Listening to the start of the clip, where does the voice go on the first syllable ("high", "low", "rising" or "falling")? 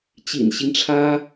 low